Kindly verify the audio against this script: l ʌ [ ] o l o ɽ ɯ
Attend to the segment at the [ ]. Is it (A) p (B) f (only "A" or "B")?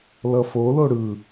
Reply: B